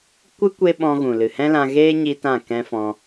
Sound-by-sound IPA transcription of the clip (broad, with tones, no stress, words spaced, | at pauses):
kʷɨ˦ kʷe˦ɓɔ̃˧ɣũ˨ lɨ˨hɛ̃˦lã˧ɣeː˦ ɲi˦tã˦˨kɛ̃˦fɔ̃˧